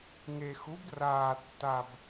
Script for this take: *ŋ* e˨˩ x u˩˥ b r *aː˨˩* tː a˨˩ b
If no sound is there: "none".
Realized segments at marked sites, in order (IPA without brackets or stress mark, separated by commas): ŋ, aː˨˩